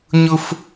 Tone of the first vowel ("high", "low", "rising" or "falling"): high